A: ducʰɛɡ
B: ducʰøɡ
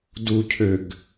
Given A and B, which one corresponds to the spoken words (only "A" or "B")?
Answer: B